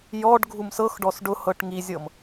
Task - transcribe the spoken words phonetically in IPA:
j ɔ ɖ ɡʱ u m s ɤ x ɖ ɔ s ɖ ʊ h ɤ ʈ ŋ i zʲ ɤ m

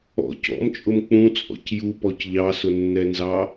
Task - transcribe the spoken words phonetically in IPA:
ɔ̰ c ɔ̰ m t͡ʃʼ ʊ m k͡p ũ t͡sʼ ɔ̰ c j u p ɔ c ʎ ɑ s ʊ nː ɛ n z ɑ

